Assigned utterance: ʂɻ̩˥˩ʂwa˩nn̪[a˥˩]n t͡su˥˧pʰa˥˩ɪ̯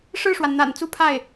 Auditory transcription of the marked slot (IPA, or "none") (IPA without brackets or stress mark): a̰˨˩